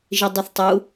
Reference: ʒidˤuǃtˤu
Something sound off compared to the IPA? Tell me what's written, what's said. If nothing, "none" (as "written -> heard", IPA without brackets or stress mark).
ǃ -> θ